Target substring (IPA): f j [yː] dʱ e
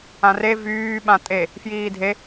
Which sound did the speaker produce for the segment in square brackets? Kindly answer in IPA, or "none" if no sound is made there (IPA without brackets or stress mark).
iː